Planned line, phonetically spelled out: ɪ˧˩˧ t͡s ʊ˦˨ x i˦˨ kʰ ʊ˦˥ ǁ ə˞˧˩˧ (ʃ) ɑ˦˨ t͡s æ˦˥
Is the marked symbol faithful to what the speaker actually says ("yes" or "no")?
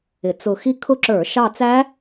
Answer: yes